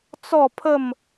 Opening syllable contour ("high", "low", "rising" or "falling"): falling